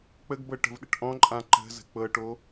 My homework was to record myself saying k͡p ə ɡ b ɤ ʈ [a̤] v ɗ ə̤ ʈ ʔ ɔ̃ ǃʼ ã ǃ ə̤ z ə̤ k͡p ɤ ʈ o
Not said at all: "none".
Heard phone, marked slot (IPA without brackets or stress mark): ə̤